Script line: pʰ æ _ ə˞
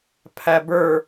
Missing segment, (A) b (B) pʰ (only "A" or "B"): A